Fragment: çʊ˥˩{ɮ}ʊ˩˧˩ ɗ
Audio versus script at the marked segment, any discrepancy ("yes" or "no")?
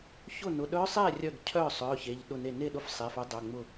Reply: yes